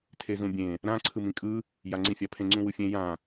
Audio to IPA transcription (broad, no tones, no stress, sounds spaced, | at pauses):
tʰ e z ũ bʲ ẽ | ɾ ã ǀʰ ɯ m ĩ kʼ ɯ | j a ŋ͡ǀ ĩ fʲ a pʰ ẽ ŋ͡ǀ ũ w ɯ fʲ ẽ j ã